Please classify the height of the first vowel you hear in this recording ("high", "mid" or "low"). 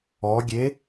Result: mid